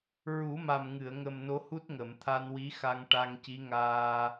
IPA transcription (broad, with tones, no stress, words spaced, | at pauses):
ɹu˨˩˦ma˨˩mŋɨ˨˩˨ə̯ ŋə˨˩m no˧˥hu˦˥t̚ ŋə˨˩˨mt̪ʰa˧nwi˧˥ xa˧ŋ ʈa˧ŋci˧˥ŋaː˧